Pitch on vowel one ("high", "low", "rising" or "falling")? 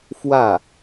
falling